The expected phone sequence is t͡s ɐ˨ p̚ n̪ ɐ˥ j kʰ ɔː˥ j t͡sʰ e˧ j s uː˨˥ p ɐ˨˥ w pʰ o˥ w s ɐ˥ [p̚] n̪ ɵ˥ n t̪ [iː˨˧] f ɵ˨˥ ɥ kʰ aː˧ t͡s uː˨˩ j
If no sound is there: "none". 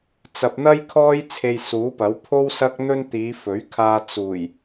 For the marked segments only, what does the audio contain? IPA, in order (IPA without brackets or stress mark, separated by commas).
k̚, iː˨˧